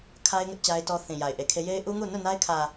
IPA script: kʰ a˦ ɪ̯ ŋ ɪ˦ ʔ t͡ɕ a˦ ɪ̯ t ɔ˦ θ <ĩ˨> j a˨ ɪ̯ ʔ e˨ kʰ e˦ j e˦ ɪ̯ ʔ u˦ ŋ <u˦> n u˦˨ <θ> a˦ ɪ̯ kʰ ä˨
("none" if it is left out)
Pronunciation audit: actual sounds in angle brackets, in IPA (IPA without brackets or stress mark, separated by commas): ĩ˨, u˦˨, n